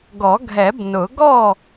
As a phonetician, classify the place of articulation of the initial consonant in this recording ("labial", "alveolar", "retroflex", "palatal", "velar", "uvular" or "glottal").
velar